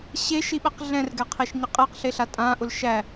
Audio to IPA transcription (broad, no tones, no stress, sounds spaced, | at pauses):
ɕ e ʃ i ɓ ɛ q ɮ ɛ̃ r ɡ ɛ qʰ e ʃ ɲ ə qʼ e q ɬ e ɬ a tʼ ã ʔ ʊ l ʃ æ